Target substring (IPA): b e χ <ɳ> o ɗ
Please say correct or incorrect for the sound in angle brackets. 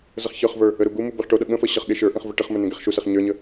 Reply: incorrect